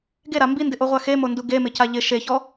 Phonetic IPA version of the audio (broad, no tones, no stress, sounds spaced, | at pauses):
ɡ e ɾ a m b i n d ɪ ʔ o ʁʷ a x e m o n d u ɡ e m ɪ c a ʎ ɪ ʃ e ç ɔ